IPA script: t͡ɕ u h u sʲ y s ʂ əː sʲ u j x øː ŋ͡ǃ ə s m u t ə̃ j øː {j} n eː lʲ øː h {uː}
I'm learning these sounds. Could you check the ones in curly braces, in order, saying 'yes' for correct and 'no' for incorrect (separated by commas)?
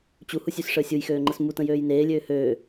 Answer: yes, no